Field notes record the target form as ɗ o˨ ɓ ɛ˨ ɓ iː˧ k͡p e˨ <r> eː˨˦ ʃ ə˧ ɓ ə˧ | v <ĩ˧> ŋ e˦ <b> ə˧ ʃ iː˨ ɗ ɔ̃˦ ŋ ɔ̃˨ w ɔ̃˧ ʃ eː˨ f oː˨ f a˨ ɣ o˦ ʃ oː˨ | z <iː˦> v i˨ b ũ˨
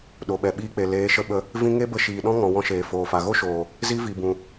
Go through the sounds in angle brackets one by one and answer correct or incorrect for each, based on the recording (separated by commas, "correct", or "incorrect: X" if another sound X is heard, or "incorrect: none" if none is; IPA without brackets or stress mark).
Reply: incorrect: l, correct, correct, incorrect: i˦